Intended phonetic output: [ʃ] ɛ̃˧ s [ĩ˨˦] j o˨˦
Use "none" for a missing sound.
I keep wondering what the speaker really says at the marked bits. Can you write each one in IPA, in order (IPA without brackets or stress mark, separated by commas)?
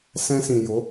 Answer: s, ĩ˨